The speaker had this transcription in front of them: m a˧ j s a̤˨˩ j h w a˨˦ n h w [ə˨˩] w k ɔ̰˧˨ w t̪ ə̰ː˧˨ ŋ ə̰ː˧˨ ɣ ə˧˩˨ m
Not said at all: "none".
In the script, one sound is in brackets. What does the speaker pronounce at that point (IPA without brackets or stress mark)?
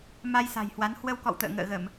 ə˧